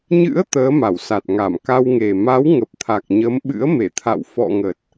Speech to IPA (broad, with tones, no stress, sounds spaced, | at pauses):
ɲ ɨ̰˧˥ ə̯ t̪ əː˨˦ m a˧˩ w s a˨˩ t̚ ŋ a˧˩ m k a˧ w ŋ e˨˩ m a˨˦ w ŋ ə˨˩ p̚ t̪ʰ a˨˩ k̚ ɲ ə˨˦ m ɓ ɨ̰˧˥ ə̯ m e˧˩ t̪ʰ a̰˧˨ w f ɔ̰˧˨ ŋ ə˨˩ t̚